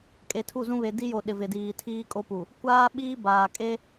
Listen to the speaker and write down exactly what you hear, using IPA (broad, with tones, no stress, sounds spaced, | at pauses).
kʼ e˨ tʰ u˦˨ z ũ˦ β e˨ d i˦ j o˨ ɗ ɪ˨ v ɪ˨ d iː˨ tʰ iː˦ kʼ o˦ p u˨ | kʷ aː˦ ɓ iː˦ b aː˨ kʼ e˦